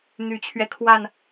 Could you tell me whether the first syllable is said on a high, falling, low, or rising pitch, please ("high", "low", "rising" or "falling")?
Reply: low